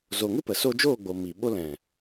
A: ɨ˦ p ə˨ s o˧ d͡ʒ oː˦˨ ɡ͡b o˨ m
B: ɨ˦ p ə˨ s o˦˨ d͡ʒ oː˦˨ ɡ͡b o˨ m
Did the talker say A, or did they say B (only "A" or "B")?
A